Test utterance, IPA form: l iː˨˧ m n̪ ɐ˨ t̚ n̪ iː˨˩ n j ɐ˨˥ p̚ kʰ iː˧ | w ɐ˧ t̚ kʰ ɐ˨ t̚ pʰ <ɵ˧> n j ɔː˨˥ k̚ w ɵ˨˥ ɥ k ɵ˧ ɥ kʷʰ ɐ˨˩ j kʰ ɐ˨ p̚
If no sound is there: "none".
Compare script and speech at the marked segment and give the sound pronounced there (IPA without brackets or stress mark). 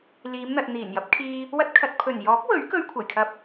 ɵ˨˩